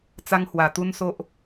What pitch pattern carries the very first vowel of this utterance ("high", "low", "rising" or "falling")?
high